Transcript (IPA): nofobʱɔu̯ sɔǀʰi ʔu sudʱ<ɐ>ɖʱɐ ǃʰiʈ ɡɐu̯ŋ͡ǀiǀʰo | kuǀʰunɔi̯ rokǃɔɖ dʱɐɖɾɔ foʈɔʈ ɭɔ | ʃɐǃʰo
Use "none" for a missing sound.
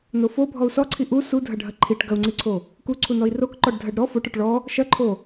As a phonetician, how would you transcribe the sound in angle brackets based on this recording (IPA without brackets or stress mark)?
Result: ɐ